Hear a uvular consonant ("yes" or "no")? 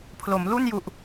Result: no